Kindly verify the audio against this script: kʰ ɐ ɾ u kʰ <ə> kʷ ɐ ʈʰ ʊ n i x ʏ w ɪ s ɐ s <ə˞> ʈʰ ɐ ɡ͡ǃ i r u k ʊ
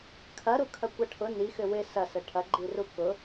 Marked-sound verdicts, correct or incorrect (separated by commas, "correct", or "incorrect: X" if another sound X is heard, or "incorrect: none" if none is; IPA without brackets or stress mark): incorrect: ɐ, incorrect: ə